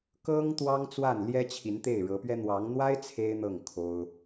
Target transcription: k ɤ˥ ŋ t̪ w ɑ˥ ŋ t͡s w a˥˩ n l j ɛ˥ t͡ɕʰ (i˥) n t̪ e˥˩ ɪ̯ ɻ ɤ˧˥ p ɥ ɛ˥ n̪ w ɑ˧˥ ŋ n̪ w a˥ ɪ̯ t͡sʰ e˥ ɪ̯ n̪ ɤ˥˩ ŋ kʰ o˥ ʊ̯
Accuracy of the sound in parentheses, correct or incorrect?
incorrect